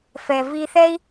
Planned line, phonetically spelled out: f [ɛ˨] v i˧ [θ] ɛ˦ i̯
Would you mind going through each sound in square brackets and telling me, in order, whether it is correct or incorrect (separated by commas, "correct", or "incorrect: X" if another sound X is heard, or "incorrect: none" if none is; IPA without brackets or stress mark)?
correct, correct